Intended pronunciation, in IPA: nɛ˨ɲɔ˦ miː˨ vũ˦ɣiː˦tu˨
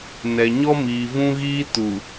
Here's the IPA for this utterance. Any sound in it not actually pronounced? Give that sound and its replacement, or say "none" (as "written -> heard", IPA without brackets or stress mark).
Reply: none